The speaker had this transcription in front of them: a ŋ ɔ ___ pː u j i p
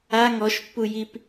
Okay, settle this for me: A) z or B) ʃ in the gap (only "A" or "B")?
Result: B